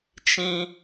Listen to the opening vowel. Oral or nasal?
nasal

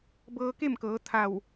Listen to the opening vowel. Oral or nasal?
oral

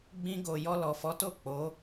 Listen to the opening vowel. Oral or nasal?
nasal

